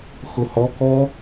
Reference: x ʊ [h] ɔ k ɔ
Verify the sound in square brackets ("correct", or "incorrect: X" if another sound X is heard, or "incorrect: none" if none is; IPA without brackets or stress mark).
correct